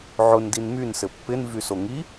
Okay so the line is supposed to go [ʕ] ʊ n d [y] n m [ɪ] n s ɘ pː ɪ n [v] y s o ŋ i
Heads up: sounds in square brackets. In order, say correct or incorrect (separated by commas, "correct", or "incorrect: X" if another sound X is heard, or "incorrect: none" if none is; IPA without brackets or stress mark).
correct, incorrect: i, incorrect: y, correct